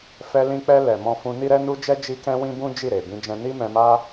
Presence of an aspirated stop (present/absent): absent